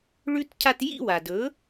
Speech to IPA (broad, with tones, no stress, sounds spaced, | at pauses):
ɭ ʉ˥ t cʰ a˧ t j ḭ˥˩ w a˩ d ɵ˩˥